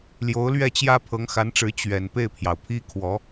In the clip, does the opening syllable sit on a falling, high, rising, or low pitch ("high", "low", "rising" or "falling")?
rising